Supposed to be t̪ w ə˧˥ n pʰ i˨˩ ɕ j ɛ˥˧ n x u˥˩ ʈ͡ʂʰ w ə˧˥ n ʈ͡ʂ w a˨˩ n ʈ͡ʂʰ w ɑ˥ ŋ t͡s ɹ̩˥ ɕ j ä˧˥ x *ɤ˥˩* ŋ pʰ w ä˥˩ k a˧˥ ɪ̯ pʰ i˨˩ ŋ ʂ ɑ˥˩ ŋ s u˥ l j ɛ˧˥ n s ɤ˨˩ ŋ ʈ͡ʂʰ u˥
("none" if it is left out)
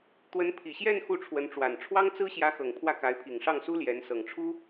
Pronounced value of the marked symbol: ɤ˨˩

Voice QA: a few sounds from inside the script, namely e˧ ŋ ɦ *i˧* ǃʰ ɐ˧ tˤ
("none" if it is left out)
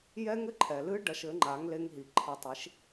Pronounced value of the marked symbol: i˨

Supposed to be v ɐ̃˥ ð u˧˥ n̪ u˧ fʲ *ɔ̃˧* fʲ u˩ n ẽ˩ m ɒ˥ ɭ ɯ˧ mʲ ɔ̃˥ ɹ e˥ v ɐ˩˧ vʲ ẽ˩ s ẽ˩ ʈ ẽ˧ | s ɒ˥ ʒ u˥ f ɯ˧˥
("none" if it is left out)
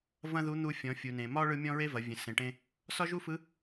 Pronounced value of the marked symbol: ɔ̃˩˧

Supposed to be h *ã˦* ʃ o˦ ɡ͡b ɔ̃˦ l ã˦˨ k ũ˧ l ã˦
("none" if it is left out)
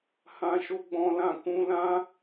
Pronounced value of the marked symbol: ã˦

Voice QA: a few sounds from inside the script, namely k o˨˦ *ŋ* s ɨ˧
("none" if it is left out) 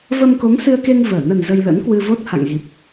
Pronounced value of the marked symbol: ŋ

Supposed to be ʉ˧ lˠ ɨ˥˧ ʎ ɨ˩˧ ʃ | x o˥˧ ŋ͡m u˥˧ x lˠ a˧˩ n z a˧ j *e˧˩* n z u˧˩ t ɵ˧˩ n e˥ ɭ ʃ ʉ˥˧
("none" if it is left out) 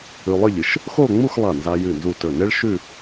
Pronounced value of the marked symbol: ɨ˧˩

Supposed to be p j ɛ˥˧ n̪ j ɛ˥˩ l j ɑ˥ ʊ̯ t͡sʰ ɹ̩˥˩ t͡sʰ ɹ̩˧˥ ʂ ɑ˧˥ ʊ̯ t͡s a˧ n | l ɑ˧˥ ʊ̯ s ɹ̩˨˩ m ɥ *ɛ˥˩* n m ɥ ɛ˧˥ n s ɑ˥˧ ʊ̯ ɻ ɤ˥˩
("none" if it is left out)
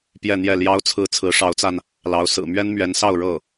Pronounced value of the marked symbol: ɛ˥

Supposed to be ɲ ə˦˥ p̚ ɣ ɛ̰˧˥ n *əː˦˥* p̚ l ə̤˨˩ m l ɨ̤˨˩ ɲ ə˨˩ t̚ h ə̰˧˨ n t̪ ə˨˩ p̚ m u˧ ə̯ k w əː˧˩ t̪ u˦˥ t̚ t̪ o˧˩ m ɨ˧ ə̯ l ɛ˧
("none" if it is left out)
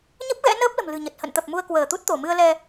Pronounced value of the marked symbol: əː˦˥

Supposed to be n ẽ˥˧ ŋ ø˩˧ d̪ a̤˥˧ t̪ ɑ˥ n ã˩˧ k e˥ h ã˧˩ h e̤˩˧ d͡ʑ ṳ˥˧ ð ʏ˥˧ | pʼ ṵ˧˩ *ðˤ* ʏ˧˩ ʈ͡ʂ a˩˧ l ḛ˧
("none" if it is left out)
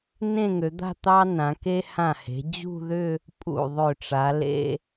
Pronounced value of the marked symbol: ðˤ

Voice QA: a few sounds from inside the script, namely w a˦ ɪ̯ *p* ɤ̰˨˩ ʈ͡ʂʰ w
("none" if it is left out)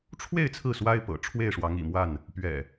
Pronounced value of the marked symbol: p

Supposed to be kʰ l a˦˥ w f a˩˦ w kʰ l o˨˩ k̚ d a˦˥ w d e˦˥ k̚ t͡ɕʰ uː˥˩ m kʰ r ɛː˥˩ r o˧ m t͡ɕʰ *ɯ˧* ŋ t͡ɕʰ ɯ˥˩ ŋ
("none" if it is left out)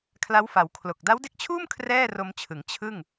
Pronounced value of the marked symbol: ɯ˩˦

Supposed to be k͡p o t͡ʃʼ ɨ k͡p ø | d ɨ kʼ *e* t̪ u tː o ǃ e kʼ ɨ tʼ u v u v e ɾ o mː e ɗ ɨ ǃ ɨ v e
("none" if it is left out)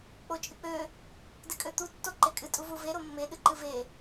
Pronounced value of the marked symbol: ø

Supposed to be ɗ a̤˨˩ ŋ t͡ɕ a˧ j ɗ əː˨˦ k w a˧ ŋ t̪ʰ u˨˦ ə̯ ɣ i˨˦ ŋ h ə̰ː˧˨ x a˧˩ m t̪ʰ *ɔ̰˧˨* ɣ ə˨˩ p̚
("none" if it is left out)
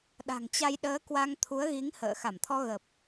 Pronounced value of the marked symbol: ɔ˧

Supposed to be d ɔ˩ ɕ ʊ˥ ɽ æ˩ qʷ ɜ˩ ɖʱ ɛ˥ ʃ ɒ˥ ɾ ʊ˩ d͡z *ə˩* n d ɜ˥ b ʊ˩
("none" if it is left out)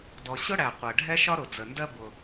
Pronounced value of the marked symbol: ə˩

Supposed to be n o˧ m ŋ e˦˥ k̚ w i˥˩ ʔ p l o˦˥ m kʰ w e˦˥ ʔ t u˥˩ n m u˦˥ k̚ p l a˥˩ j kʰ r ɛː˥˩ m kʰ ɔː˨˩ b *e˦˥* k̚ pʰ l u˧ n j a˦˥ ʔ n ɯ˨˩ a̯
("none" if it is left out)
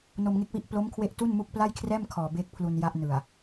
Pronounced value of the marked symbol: e˦˥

